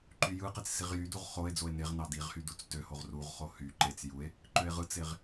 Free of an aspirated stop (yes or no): yes